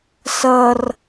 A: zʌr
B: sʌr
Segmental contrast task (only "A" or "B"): B